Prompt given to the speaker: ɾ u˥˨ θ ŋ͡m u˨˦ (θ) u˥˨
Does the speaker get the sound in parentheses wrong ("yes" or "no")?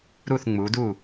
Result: yes